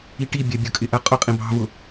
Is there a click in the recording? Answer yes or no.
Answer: no